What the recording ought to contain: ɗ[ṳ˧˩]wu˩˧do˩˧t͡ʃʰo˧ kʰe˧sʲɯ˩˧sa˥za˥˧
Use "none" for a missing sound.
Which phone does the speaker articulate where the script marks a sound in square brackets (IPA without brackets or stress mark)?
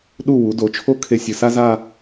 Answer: u˧˩